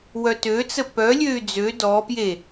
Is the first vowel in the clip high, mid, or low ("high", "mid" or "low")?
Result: mid